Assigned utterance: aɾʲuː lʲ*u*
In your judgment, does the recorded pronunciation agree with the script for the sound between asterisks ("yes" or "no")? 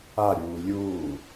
no